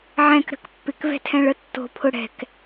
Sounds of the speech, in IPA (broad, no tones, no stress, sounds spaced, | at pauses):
ʕ ɛ̃ k ɾ ə̤ k pː ɪ k v ɛ̤ tʰ ɛ̃ ɭ ə tː o̤ pʰ ʊ ɽ ɛ̤ k